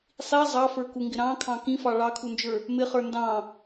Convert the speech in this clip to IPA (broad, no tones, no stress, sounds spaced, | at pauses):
sˤ i zˤ ɑ f ə˞ k u ŋ ɡ ɪ ɾ ɑ̃ kʰ ɑ̃ k ĩ f ɑ ɭ ɑ kʰ u n d͡ʒ ə˞ | m ɪ χ ə˞ n d ɑ̃